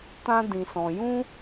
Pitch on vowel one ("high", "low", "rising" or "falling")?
high